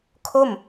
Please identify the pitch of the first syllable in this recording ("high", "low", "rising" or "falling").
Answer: falling